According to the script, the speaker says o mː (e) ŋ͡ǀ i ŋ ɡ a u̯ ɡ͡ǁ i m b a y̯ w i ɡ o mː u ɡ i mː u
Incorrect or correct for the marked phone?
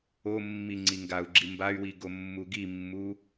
incorrect: i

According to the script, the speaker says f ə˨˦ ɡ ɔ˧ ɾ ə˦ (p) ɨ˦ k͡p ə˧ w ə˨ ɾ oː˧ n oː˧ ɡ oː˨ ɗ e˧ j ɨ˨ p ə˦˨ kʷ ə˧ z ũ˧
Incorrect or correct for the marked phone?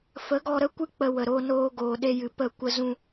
incorrect: kʷ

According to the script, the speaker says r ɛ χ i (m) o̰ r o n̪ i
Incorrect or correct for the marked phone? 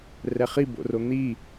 incorrect: b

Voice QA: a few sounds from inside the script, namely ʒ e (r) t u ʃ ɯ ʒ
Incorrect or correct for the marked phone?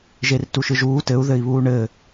correct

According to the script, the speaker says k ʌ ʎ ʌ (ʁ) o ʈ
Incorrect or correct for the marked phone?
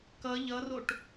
incorrect: r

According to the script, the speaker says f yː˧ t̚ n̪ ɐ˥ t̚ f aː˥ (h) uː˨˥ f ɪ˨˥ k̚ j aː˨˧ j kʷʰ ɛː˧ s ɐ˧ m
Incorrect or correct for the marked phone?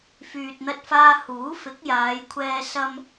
correct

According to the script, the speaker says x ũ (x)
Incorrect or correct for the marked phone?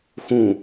incorrect: none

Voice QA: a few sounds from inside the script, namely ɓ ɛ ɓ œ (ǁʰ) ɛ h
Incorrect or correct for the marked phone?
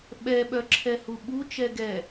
correct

